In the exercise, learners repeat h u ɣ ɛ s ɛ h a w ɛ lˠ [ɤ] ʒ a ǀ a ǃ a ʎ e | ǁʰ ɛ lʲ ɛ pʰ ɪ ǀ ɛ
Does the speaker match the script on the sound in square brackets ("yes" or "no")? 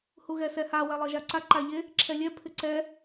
yes